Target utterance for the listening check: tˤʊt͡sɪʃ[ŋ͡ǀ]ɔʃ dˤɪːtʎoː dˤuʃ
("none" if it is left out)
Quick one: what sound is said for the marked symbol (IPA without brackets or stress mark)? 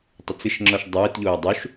ŋ͡ǁ